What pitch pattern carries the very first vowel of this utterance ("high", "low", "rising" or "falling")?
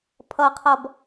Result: low